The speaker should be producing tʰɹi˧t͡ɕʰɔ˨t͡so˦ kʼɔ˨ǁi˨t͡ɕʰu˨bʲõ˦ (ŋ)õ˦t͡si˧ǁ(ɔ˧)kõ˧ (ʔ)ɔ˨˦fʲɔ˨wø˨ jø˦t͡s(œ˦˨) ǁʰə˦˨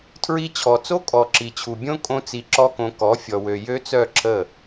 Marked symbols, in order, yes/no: no, no, no, yes

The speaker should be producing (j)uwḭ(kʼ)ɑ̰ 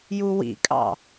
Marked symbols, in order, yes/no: yes, yes

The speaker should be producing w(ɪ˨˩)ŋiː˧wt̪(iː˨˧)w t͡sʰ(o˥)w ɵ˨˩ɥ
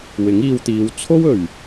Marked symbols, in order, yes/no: no, yes, yes

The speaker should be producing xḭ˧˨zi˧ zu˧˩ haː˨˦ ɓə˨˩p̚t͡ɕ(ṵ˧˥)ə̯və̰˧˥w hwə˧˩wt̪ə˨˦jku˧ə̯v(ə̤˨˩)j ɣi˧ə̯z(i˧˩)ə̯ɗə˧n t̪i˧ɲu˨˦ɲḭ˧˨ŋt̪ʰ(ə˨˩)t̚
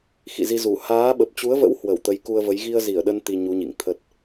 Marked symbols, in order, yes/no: no, no, yes, no

